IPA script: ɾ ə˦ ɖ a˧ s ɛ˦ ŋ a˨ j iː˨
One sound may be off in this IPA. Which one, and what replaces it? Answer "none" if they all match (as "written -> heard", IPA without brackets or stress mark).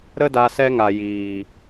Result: ɖ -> d